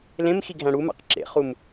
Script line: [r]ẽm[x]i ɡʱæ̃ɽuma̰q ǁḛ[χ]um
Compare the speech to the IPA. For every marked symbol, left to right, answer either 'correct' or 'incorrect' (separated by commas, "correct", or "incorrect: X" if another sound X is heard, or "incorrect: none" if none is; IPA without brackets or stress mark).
incorrect: l, correct, correct